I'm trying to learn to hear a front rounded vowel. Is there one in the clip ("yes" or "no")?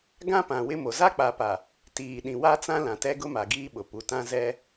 no